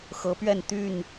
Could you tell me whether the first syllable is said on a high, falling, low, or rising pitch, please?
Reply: rising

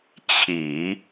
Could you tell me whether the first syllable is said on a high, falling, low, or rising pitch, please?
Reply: low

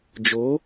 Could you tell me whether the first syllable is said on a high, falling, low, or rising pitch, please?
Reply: rising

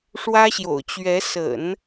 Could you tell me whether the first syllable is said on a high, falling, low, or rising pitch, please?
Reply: high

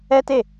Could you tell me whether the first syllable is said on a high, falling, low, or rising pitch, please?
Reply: high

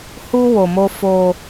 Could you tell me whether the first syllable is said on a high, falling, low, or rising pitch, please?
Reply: high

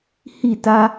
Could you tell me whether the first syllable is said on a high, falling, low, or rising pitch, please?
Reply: falling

